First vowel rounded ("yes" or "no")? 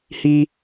no